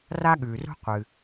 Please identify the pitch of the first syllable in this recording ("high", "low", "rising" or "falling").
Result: high